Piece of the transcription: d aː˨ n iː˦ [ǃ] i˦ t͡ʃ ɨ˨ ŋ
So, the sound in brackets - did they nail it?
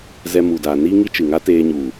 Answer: no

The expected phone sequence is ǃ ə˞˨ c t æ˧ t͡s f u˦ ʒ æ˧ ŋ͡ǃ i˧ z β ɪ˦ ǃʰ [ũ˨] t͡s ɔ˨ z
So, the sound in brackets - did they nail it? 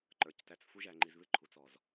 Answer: no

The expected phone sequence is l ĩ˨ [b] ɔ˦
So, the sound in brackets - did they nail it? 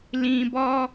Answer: yes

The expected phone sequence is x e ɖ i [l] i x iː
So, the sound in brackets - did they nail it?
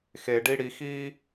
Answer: no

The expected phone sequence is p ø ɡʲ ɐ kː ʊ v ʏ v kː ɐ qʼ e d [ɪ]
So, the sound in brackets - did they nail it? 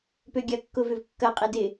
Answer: yes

